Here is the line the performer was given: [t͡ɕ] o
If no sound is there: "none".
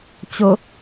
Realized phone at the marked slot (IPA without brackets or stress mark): t͡ɕ